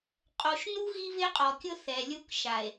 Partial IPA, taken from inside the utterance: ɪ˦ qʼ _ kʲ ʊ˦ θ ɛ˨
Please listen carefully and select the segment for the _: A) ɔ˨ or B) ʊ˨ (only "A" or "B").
A